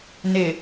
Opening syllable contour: low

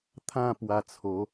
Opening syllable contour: falling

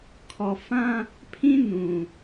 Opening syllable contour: low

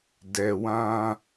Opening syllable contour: low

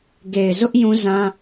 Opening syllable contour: low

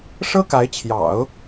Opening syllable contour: high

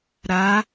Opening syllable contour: rising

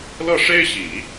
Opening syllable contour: falling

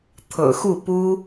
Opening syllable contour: low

